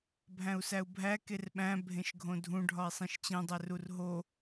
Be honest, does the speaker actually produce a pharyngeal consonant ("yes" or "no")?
no